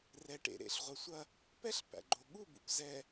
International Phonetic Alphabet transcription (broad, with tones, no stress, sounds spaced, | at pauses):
r ɛ˨ ʈ ḛ˨ ɾ ḛ˨ ɬ ʁʷ ɐ˨ sʷ ɐ˦ | p ɛ˦ ɬ p æ̰˨ ɡ͡ǃ o˨ ɠ u˦˨ b ṵ˨ p z ɛ˨